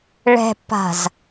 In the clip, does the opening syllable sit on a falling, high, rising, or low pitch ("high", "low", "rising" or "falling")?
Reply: low